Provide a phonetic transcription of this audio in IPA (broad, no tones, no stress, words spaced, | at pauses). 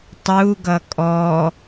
tˤu ɡʌkʼɔ